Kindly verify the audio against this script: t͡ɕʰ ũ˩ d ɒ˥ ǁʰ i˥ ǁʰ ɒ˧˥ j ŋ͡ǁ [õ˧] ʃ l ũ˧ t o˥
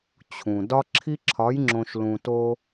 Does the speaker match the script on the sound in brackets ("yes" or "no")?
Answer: yes